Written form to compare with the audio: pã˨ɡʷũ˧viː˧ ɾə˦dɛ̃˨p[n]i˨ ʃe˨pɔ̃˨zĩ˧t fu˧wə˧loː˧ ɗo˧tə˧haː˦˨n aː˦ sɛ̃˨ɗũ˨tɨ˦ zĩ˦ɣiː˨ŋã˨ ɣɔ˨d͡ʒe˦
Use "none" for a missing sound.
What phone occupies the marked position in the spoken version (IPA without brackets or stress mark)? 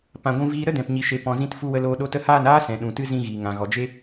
ɲ